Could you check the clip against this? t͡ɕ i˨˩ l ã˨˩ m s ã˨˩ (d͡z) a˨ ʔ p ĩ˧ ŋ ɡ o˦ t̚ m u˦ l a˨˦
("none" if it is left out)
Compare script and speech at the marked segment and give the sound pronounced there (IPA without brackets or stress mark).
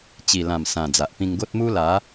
d͡z